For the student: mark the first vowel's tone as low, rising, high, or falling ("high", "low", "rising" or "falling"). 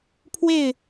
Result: falling